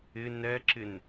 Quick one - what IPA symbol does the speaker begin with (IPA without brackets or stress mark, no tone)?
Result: ɪ